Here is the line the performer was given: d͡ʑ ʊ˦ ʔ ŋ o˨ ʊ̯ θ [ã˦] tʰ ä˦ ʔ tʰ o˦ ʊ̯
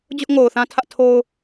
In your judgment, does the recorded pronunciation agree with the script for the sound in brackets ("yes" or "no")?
yes